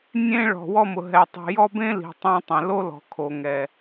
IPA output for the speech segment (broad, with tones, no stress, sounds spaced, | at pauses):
nʲ ẽ˦ ɭ ɔ̤˨ w ɔ˦ m ʊ˨ ɦ ɛ˨ tˤ i̤˨ j ɔ˦ b ẽ˦ l i̤˨ tˤ ĩ˧ tˤ ɛ̃˨ l o˦ l ɔ̤˨ kʰ o˨ ŋ ɛ˨